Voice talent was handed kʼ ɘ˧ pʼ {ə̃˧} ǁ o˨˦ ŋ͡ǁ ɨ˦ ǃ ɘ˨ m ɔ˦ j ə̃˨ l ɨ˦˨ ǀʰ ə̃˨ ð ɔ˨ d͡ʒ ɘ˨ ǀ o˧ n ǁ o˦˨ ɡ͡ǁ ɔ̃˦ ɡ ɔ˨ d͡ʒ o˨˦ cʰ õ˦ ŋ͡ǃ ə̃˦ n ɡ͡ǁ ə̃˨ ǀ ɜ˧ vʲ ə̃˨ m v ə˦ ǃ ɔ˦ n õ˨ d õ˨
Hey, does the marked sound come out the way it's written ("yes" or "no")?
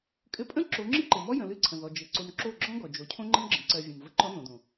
no